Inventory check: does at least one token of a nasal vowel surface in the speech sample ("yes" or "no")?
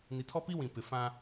yes